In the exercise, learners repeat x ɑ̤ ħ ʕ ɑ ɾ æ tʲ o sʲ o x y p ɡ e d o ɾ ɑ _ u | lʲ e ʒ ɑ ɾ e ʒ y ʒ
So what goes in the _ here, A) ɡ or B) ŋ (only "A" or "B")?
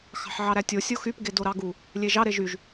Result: A